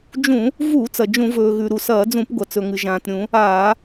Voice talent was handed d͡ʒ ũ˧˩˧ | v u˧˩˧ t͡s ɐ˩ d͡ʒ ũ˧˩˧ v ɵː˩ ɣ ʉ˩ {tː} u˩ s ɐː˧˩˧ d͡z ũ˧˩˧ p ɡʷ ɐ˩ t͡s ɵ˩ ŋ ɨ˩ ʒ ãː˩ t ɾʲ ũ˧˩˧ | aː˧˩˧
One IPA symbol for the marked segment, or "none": ɾ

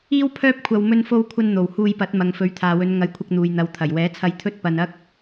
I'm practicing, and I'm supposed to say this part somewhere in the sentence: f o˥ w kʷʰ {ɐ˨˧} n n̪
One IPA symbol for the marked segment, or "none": ɐ˥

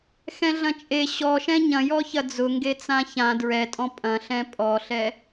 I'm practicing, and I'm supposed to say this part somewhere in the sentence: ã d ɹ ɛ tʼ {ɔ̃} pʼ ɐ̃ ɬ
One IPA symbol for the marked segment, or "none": ɔ̃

